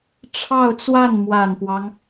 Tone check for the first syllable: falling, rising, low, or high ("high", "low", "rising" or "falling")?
falling